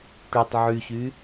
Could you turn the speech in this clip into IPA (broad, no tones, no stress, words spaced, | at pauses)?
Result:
ʈytˤ ʕyɕy